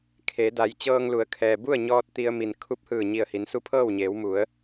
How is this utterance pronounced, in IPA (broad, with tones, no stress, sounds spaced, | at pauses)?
kʰ e˩˧ d a˩˧ j t͡ɕ ɤː˧ ŋ l u˩˧ ə̯ kʰ ɛː˩ b u˥˨ ə̯ ɲ ɔː˧ t̚ t̪ i˧ ə̯ m i˩ n kʰ u˧˥ p̚ h ɯː˧˩ ɲ i˧˩ ə̯ h i˩˧ n s u˧˥ pʰ ɤː˥˨ w ɲ eː˩˧ w m u˩˧ ə̯